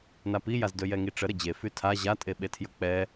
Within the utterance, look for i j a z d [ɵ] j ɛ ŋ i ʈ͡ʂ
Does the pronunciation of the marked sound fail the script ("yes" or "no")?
no